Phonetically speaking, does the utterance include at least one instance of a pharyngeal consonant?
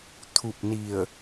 no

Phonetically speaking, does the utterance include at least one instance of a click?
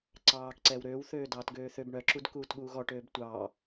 yes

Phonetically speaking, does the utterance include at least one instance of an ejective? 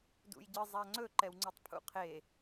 no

